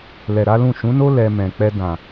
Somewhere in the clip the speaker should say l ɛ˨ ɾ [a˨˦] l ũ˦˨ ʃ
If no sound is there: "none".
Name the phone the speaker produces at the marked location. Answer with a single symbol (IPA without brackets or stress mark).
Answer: a˨˦